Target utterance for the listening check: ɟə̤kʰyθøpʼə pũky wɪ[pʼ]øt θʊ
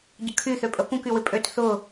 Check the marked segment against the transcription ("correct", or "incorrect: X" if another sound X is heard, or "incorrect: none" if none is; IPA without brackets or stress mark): correct